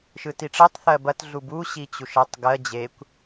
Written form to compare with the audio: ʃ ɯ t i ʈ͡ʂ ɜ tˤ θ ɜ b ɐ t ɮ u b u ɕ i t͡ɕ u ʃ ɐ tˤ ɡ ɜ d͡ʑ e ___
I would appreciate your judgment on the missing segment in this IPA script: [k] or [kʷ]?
kʷ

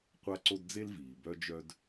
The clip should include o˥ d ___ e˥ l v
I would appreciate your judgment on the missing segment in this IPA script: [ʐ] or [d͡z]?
d͡z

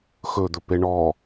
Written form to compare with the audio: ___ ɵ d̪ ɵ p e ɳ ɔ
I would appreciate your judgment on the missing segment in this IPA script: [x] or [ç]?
x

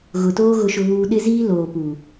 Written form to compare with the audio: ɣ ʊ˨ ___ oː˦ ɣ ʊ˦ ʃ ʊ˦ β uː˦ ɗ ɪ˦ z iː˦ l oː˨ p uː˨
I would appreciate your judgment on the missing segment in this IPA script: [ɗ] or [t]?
t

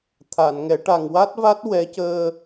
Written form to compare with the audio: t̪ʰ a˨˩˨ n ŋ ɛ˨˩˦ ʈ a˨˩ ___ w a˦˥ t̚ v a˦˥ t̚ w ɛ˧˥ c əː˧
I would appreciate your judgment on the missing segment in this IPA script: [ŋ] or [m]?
ŋ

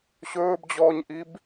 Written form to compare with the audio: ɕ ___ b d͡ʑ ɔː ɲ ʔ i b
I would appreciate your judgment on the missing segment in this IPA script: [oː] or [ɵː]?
ɵː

